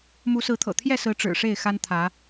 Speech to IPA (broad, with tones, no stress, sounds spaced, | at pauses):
m u˨˦ s ɹ̩˨˦ t̪ʰ ɤ̰˨˩ t̪ʰ j ɛ˥˨ s ɹ̩˨˦ ʈ͡ʂ ɻ̩˨˩ ʂ e˥˨ ɪ̯ x a˦ n t̪ʰ ä˨˦